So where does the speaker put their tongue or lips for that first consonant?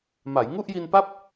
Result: lips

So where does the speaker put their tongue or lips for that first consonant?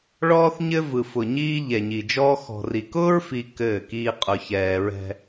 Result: retroflex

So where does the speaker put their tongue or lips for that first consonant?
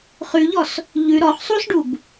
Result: uvula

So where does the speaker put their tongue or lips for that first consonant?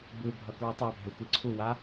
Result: lips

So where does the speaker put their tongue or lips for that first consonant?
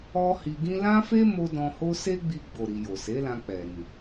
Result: throat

